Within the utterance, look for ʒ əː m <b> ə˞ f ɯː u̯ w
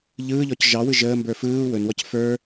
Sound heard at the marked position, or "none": b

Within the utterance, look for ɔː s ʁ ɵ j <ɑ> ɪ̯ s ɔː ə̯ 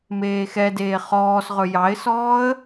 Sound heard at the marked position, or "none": ɑ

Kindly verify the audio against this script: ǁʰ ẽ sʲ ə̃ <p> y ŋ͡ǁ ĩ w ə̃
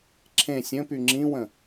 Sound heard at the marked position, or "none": p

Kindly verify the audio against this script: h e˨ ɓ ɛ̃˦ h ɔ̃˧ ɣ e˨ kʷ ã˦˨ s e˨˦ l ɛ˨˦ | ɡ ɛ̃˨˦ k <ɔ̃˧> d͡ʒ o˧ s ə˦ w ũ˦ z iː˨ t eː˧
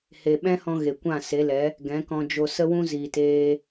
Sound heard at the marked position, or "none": ɔ̃˧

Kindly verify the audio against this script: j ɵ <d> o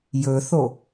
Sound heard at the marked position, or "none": θ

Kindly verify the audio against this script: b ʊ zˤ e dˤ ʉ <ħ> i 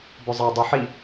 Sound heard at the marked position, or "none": ħ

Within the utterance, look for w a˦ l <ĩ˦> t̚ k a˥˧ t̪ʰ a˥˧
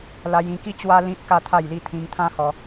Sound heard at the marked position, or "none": ĩ˦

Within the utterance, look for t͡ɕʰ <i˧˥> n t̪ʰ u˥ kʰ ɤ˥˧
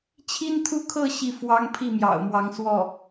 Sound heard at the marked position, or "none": i˥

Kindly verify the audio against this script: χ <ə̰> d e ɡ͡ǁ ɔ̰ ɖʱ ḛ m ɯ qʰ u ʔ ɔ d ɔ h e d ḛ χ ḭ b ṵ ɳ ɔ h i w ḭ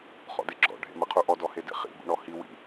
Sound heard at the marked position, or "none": ɔ̰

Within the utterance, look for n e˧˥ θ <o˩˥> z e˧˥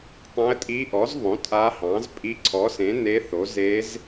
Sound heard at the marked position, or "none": o˩˥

